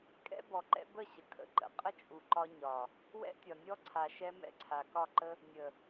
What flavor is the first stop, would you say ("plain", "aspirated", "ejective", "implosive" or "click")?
ejective